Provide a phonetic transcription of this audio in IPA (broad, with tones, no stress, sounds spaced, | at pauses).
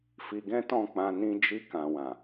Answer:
f i˧ ɡ ɛ̃˦ t ɔ̃˦˨ k͡p ã˧ n ĩ˧ d͡ʒ i˧ k ã˨ w ã˨